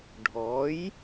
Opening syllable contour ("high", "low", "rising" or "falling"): rising